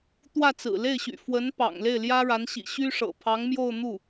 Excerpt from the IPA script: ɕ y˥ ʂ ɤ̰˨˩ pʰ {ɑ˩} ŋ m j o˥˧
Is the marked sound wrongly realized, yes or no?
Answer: yes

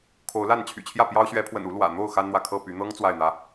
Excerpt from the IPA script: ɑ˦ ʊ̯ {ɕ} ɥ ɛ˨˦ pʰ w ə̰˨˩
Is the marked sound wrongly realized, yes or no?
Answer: no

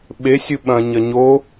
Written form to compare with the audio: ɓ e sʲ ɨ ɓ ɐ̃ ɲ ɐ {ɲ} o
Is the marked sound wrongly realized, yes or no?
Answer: no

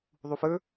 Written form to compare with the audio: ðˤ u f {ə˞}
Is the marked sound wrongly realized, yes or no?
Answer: no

